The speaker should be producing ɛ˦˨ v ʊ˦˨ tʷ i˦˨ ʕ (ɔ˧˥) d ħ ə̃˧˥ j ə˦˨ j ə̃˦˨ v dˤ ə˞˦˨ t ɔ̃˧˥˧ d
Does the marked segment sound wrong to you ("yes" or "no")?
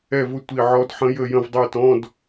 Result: no